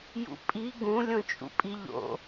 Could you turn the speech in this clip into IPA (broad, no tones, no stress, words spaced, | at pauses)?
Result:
jṵpʼi ɡũ lʲõt͡ʃʼṵpʼiʎo̰